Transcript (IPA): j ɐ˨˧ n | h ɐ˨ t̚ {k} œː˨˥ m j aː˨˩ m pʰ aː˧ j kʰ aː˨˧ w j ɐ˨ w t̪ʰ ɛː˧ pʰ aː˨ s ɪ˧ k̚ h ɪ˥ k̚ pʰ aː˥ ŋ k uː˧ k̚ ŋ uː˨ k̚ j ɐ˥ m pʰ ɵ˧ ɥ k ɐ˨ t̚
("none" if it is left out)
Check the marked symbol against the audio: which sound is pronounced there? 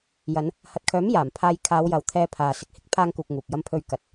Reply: kʰ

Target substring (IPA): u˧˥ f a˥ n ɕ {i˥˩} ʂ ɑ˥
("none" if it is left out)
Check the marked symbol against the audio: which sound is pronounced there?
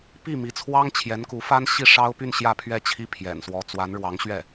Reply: i˥˩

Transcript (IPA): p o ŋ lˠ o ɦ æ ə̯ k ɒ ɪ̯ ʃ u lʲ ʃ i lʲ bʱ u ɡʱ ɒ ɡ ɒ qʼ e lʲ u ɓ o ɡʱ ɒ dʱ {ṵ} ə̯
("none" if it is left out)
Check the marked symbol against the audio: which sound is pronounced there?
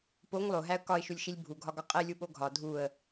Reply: u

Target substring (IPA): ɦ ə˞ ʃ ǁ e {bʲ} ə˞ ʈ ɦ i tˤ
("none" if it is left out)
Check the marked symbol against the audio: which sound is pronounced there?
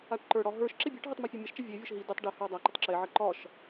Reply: bʲ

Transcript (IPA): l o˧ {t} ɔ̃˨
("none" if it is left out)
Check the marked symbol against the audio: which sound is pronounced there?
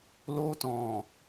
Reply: t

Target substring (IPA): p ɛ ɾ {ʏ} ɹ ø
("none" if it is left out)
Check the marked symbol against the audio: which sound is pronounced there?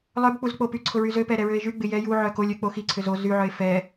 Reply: ɛ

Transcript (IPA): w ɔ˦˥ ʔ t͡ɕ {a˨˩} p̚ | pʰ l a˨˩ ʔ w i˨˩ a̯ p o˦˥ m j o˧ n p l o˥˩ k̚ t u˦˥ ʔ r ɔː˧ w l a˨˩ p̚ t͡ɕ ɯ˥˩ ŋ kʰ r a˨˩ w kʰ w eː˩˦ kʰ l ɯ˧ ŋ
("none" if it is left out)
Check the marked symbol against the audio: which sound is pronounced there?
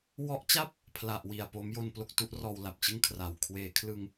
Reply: a˥˩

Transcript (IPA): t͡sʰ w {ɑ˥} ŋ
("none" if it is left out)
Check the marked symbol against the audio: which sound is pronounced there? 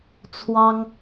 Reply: ɑ˥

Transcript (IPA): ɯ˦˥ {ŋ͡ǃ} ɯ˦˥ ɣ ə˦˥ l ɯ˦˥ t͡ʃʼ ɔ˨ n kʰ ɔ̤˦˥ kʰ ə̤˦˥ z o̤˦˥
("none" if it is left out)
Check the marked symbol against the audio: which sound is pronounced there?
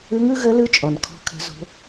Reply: ŋ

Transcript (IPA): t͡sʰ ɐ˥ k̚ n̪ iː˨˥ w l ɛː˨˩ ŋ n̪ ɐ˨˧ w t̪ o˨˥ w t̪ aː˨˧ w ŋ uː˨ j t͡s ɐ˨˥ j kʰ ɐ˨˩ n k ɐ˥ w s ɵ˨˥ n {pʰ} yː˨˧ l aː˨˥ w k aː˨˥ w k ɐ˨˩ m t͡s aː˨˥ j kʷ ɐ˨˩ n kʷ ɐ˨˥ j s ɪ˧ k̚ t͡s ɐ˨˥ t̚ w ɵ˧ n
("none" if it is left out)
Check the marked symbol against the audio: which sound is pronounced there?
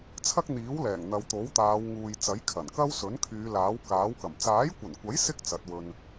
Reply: kʰ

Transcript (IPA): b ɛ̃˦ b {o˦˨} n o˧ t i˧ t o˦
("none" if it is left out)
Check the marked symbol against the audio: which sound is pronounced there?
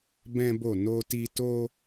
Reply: o˦˨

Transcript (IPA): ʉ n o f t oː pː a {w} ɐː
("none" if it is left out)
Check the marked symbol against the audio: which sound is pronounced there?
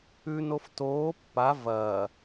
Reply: v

